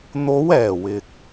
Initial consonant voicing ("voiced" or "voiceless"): voiced